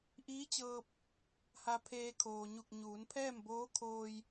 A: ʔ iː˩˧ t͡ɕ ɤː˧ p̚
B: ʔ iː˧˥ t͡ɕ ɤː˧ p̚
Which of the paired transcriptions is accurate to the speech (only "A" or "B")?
B